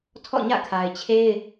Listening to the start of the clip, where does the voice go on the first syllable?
falling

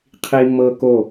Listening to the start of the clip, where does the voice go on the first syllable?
high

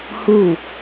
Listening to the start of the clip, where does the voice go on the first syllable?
falling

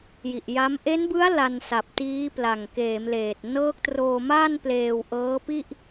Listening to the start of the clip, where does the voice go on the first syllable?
low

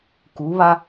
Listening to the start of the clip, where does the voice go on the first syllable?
rising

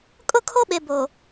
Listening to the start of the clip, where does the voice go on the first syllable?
high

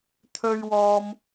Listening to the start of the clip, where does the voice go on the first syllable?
low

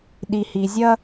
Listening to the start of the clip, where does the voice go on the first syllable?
low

